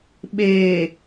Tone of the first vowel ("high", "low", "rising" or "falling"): low